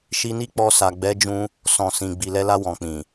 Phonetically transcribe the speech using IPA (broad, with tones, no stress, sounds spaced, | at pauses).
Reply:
ʃ i˧ n i˦ k͡p ɔ˧ s a˨ ɡ͡b ɛ˨˦ d͡ʒ ũ˧ | s ɔ̃˨ s ĩ˨ ɡ͡b i˨ l ɛ˧ l a˧ w ɔ̃˨ k͡p ĩ˨